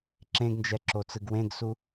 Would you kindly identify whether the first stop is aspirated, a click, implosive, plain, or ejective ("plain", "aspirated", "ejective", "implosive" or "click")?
click